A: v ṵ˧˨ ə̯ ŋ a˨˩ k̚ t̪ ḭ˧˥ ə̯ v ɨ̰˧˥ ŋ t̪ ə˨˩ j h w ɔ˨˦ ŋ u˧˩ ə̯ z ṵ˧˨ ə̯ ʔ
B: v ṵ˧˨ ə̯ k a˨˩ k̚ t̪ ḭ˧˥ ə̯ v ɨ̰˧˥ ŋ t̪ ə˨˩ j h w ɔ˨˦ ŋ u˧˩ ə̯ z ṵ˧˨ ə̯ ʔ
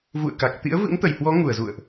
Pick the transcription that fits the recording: B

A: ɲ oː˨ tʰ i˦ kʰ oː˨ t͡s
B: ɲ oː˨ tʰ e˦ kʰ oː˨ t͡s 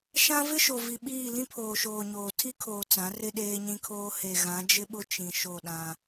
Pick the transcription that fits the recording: A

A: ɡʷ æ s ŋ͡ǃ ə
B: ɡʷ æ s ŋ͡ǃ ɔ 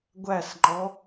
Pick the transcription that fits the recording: B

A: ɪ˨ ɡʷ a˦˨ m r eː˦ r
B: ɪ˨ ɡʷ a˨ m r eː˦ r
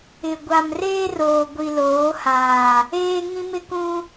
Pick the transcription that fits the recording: B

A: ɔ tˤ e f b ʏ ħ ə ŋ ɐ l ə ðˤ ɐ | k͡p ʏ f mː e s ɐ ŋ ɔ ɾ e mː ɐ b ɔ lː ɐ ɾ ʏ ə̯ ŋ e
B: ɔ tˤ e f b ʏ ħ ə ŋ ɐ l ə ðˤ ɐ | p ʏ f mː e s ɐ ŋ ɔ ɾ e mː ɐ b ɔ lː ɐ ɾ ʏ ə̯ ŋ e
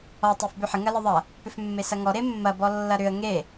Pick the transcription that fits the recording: B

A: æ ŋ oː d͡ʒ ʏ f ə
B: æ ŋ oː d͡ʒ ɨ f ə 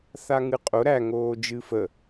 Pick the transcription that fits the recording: B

